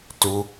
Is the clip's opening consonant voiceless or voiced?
voiceless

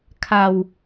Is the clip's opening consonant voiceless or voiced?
voiceless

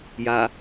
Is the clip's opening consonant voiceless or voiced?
voiced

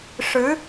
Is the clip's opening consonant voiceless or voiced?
voiceless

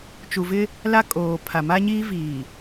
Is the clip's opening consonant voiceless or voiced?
voiceless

